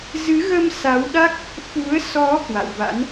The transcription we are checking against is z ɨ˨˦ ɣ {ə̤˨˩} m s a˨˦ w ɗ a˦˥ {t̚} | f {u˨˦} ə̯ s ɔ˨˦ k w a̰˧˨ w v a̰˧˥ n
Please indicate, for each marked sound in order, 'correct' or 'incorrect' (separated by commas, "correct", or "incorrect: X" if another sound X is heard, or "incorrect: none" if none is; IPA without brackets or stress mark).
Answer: incorrect: ə˧, incorrect: k̚, correct